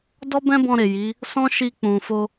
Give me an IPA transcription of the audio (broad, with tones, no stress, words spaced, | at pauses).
dɔ˦bɛ̃˦bɔ̃˧ɾe˨ ji˨˦ | sɔ̃˦ʃi˧k͡pũ˨fo˧